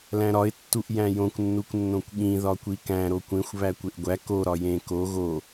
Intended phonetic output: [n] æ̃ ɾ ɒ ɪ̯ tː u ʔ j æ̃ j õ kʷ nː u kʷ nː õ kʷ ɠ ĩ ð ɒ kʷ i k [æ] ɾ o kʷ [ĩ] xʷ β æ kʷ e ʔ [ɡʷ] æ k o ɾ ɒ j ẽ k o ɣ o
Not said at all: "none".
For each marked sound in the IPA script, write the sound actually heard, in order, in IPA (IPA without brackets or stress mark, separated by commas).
l, æ̃, ẽ, ɡʷ